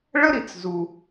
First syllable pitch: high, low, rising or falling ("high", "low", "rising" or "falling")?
high